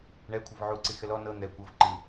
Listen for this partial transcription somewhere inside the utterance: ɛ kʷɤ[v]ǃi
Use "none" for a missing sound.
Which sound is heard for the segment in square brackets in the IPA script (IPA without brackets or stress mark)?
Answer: v